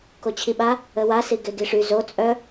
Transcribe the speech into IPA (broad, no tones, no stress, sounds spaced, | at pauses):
k o t͡ɕʰ i ɓ a | ə w a s i ɡ e ɡ i ʂ y z o t͡sʼ œ